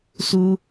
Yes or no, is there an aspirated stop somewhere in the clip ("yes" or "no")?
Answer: no